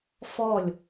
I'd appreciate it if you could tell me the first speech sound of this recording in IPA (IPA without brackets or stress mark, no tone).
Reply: f